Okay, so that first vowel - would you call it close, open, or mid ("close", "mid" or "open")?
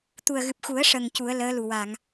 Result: close